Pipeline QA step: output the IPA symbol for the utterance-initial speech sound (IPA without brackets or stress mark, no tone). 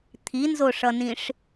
t̪ʰ